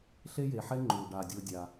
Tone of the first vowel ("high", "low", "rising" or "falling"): high